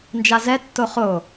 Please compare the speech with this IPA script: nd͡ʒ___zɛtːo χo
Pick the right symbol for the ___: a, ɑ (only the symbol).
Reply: a